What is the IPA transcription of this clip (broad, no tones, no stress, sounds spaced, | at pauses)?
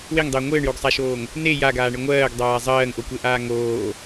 w e ŋ dˤ ɘː ŋʷ ɘː ɳ j o ɡ sˤ a ʃ oː ŋ | n e j a ɡ aː ɳ ɘ ŋʷ ɜː ɡ dˤ aː zˤ ɜː ŋ ʔ o kʷ e ʔ aː ŋ oː